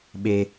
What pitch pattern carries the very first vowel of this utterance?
low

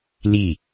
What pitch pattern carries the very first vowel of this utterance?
falling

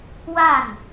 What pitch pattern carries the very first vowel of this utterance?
falling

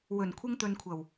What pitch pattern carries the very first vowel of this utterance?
low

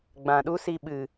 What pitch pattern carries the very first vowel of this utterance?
low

